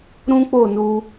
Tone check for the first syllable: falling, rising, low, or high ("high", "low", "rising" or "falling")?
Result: high